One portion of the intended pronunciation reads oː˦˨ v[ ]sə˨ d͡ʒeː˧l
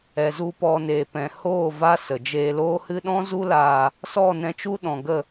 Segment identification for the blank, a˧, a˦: a˦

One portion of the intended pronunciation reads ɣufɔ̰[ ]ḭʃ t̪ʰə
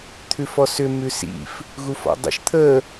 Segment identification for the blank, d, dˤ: dˤ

